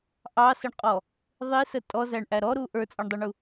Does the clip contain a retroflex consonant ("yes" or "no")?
yes